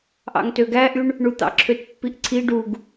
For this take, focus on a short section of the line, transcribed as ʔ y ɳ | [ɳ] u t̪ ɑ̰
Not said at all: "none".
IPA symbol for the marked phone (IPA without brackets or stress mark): ɳ